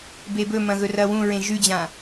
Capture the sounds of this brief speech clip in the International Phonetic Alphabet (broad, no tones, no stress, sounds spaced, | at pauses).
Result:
b e b ɵ m ɐ̃ ɣ ɵ r ɐ w ũ ɹ ẽ ʒ ʉ d͡ʑ ã